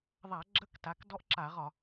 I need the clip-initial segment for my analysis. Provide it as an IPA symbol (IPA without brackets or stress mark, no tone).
ðˤ